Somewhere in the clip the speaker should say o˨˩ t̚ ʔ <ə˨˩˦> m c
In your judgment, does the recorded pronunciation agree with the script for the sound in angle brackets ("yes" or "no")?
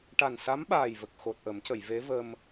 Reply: yes